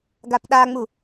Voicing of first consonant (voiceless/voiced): voiced